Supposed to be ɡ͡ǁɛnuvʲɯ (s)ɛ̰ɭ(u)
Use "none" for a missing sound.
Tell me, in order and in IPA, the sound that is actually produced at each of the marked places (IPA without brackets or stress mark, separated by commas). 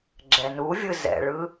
z, ɯ